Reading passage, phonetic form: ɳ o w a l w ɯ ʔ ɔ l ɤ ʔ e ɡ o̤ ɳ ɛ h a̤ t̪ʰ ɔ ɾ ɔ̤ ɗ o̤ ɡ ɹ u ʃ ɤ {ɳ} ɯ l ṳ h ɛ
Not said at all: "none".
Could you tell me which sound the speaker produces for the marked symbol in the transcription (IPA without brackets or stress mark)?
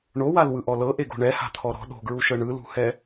ɳ